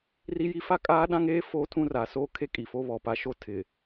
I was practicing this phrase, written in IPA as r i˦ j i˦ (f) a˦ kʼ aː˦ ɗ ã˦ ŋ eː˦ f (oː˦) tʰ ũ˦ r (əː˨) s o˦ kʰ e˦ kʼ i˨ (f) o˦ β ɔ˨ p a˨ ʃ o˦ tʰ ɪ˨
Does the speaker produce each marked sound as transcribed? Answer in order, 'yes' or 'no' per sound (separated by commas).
yes, yes, no, yes